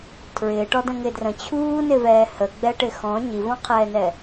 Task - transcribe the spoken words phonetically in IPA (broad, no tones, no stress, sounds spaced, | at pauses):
tʰ ɹ ɪː ʈ ɔ d ə̃ ŋ ɪ d r ə̃ t͡ɕʰ uː n ɪ v ɛː h ə ɡ͡b ɛ ʈ ɪ x ɔ̃ ɲ i v ɔ̃ qʰ ɛː n ɛ